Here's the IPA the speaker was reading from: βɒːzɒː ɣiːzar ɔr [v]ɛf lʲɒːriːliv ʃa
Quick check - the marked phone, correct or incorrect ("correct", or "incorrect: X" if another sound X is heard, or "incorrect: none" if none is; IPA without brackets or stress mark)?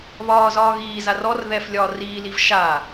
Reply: incorrect: ð